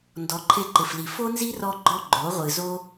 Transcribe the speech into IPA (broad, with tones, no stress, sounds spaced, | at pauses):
n d ɔ˨˦ ǃʰ e˧ ǃ ɪ˨ f l i˨ f o˦ n z i˦ r ɔ˧ ɡ͡ǃ ɔ˦ ɡ͡ǃ o˨˦ ʁʷ ɨ˨ z o˦